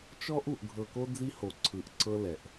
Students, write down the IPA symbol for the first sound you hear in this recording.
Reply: t͡ʃ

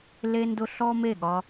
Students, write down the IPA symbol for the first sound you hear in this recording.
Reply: l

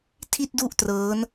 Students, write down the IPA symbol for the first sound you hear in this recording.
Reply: tʰ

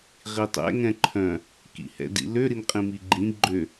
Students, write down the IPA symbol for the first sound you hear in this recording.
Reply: ʁ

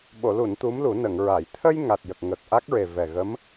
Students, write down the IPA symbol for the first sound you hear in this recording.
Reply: ɓ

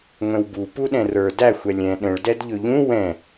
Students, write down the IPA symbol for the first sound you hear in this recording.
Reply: ŋʷ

